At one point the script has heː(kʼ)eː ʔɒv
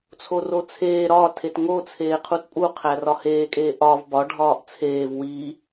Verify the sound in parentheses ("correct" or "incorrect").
correct